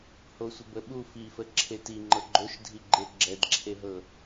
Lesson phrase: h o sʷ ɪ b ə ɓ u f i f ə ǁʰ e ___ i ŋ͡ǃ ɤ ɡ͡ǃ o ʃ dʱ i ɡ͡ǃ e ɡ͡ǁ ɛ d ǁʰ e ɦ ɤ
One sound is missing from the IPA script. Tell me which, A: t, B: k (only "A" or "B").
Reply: A